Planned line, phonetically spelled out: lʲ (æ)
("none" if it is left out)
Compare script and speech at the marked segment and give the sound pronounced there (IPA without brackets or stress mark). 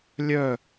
œ